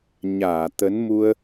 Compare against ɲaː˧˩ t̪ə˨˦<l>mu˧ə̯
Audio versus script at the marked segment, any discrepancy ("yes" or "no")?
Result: yes